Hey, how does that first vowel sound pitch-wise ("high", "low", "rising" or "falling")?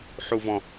high